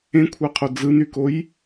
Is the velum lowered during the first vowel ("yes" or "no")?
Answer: yes